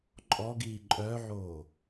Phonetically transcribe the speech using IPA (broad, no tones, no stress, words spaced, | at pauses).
ǃʼɔɡiː ǃʼœʕoː